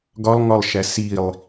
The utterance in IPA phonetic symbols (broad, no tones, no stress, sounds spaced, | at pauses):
ɡ ɒ lˠ ŋ ɒ lˠ ʃ æ s i lˠ